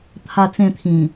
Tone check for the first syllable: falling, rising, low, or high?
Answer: falling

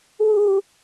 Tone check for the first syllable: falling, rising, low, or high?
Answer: high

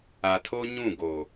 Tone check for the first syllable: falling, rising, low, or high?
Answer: low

